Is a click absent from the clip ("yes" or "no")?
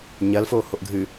yes